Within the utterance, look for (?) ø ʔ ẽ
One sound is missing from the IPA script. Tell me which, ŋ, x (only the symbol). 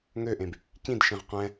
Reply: ŋ